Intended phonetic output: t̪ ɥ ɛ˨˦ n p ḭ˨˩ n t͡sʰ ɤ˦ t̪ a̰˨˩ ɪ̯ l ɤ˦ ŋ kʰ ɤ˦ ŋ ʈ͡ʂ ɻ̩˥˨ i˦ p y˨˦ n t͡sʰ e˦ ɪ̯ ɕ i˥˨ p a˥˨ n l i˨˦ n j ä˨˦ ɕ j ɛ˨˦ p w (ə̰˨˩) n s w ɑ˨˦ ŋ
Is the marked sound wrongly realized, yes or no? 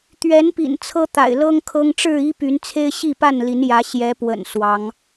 no